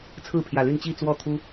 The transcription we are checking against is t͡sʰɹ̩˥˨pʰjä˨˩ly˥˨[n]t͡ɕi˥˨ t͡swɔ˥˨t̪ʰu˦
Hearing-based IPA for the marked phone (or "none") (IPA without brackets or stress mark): n